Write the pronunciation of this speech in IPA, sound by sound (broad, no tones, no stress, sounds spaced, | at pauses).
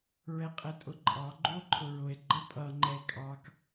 ɹ ɛ qʼ ɛ tʼ ʊ ǃʼ ɑ ɡ͡ǃ u o̯ ǃʰ ʊ ɹ ʊ e̯ ɡ͡ǃ ʌ pʼ ʌ ŋ͡ǃ ɛ e̯ kʼ ɑ k